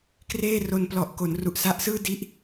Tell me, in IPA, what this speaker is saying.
k r eː˥˩ r o˧ n p l ɔ˨˩ ʔ k o˩˦ n r u˨˩ ʔ s a˦˥ ʔ s ɯː˥˩ d i˦˥ ʔ

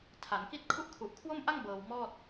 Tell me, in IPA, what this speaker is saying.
tʰ a˩˦ n k i˥˩ t̚ kʰ u˦˥ ʔ kʰ u˨˩ ʔ kʰ w o˥˩ m ʔ a˥˩ ŋ b ɤː˧ w m ɔː˥˩ t̚

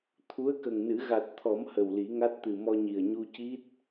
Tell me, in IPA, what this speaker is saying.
t̪ʰ u˧˥ ə̯ k ə˨˩ ŋ n ɨ˨˩˦ ɣ a˨˩ t̚ t̪ʰ ɔ˨˩˦ m h ə˨˩ w l i˨˩˦ ŋ a˦˥ t̚ t̪ ɨ˨˩ m ɔ˧ ɲ i˨˩ ə̯ ɲ u˧ c i˦˥ t̚

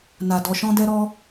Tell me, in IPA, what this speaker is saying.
n a˨ d ɔ˨ ʃ ɔ̃˦ d ɛ˦ ɾ ɔ˦

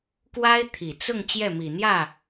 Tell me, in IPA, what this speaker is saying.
k w a˥ ɪ̯ t̪ʰ i˨˩ t͡s ʊ˥˧ ŋ t͡ɕ j ɛ˥˩ m i˨˩ n̪ j ä˥˩

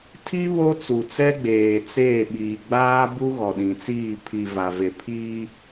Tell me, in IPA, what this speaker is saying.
tʰ i˦ β o˦ t͡s u˨ t͡s ɛ˦ ɡ͡b eː˨ t͡s eː˦˨ ɓ iː˨ ɡ͡b aː˦ b u˦ ɣ ɔ˨ ɗ ĩ˨ t͡s iː˦˨ pʰ i˨ v a˨ v e˨ pʰ iː˦

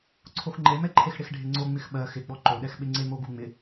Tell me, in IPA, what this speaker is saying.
ǀʰ o x ŋ͡ǃ e m ɛ ǃʰ e x ɽ ɪ x ɖʱ ɪ ŋ͡ǀ o ŋ͡m ɪ x ɓ ɜ x ɪ ɡ͡b ɔ ǃ o ɗ ɛ x ɓ ɪ ŋ͡ǀ e m o ɡ u ŋ͡m ɪ

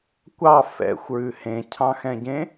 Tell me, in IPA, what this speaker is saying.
kʷ ɑ f ɛ̰ xʷ ɹ ʉ h ẽ cʰ ɑ̃ x ɛ̃ ɟ ẽ

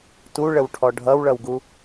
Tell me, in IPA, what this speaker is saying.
t u ɭ ə w ʈʰ ɔ ɖʱ ʌ w ɭ ʌ w ɡ u

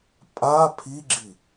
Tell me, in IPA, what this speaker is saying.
pʼ a pʰ i ɡ͡ǁ i

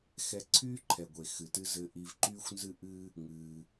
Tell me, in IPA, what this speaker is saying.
x ɛ˧ ǀʰ yː˦ ǃʰ ɛ˨ ɡʷ e˨ x ɨ˨ t ɨ˦ z ɘ˧ ʔ i˧ v ǃ yː˦ xʷ n z ɨ˦ ʔ ɨː˦ | ŋ ɨː˧

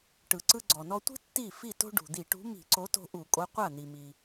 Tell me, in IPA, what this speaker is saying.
ʈ ɯ˩ ǀ ɯ˧ ɡ͡ǀ ɔ˩ n ɔ˧ tʷ i̤˥ tː i˥˩ f i˥˩ t o̤˥ ɖ ṳ˩ d̪ i˧˩˧ ʈ ṳ˨˥ m i̤˧˩˧ ǀ o˨˥ t o̤˧ ʔ u˧˩˧ kʼ o˨˥ qʷ a˥˩ n̪ i˩ m i˩

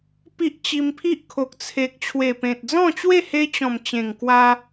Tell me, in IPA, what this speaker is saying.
p i˦ ʔ t͡ɕ i˧ m pʰ i˦ ʔ kʰ o˨ k̚ t͡sʰ e˨ k̚ t͡ɕʰ w e˨˩ p ẽ˨ t̚ d͡z ɔ̃˥˧ t͡ɕ w e˥˧ h e˧ t͡ɕ ɔ̃˨˩ m t͡ɕ ẽ˨˩ ŋ k w a˧

